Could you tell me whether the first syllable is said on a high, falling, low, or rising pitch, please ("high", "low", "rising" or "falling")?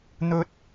high